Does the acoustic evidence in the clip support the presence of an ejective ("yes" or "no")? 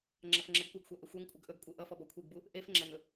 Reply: yes